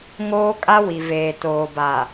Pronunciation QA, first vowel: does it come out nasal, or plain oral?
oral